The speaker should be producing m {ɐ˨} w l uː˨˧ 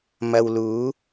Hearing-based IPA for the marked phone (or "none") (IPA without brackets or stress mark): ɐ˨